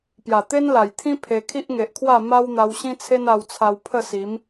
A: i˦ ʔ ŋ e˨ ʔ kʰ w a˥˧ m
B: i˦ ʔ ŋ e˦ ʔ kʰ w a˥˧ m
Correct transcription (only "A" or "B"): A